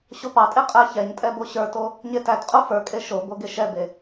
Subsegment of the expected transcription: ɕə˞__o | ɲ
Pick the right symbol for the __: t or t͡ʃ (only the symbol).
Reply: t